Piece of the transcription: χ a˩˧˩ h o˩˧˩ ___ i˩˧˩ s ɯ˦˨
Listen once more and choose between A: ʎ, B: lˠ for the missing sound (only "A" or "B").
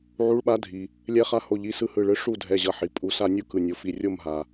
A